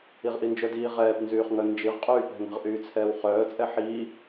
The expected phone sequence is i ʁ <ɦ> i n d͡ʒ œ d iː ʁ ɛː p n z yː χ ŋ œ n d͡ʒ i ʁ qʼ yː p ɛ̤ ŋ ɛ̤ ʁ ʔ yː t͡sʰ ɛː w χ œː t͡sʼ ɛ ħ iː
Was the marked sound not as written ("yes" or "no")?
yes